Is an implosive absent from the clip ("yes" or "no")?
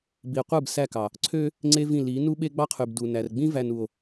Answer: no